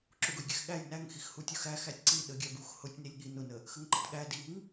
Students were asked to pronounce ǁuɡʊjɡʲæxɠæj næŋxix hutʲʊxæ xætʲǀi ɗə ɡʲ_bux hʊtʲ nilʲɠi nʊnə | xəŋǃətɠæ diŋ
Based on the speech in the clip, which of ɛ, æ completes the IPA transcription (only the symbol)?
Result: æ